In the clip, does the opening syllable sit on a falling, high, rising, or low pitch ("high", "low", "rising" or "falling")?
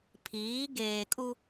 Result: rising